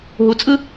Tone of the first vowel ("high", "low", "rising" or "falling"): low